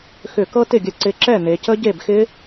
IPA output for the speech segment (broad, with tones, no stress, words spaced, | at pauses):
xʏ˧˩˧ kɤ˦˥tɪ˥˩ɡʲə˧˩ ǀɪ˨˥ǁɛ˥˩ ne˩˧cə˦˥ɟe˥˩bxɪ˦˥